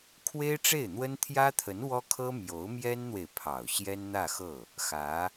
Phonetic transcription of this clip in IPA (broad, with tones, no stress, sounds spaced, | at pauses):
kʰ w e˥ ɪ̯ ʈ͡ʂ e˥˩ ɪ̯ n̪ w ə˥ n t̪ʰ j ä˥ t̪ʰ ə˧˥ n w ɔ˥ kʰ ɤ˥ m j o˧˥ ʊ̯ m j ɛ˥ n n̪ w e˨ ɪ̯ pʰ ɑ˨˩ ʊ̯ ɕ j ɛ˥ n n̪ ä˥˧ x ɤ˥˩ | x ä˧˥